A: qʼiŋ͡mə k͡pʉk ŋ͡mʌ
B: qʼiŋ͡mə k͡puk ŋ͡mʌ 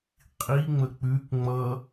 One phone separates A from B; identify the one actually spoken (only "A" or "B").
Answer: A